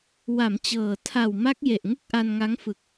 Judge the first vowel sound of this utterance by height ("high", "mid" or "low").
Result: low